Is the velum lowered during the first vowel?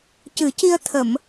no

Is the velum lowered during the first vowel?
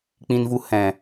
yes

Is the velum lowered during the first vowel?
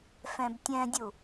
yes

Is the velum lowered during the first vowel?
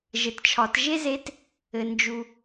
no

